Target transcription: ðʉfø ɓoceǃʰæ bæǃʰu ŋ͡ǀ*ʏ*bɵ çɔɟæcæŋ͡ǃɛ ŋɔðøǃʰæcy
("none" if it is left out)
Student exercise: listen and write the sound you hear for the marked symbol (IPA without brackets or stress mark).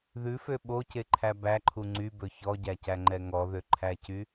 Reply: y